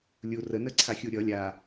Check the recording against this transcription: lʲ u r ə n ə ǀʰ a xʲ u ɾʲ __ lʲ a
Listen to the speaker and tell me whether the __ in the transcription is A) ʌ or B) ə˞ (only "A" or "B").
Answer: A